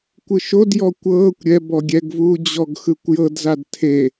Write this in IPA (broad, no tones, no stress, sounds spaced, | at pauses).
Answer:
kʷ ɯ ʃ o d j ɔ kʷ ɤː kʷ ɾʲ ɛ b ɔ ɡʲ ɛ ɡ v uː d͡ʑ ɔ ɡ x ɯ kʷ j ɤ d z a d tʰ e